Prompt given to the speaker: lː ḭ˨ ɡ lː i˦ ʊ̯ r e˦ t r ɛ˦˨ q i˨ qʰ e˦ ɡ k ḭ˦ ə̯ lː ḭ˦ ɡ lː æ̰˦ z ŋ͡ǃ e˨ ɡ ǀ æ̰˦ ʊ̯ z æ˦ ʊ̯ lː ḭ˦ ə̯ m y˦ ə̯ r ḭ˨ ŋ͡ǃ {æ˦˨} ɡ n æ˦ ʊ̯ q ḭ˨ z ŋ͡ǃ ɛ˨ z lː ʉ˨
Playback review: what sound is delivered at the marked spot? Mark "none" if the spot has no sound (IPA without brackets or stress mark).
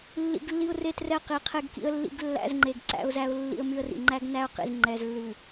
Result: æ˦